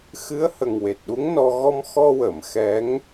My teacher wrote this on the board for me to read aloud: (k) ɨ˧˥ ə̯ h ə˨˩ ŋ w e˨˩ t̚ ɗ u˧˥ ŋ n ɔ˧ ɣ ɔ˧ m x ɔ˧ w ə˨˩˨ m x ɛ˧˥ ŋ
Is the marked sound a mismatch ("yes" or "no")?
yes